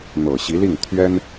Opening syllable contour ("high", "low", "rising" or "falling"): low